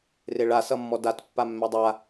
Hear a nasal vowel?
no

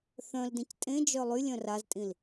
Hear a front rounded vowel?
yes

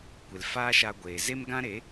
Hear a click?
no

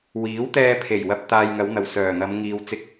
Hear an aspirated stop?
yes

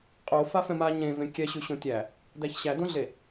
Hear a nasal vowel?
yes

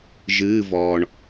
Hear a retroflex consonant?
yes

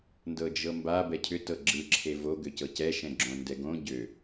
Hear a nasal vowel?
yes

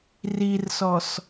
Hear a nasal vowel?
no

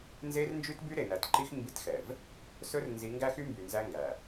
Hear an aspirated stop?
no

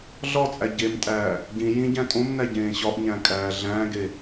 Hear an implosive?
no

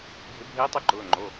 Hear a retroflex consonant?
no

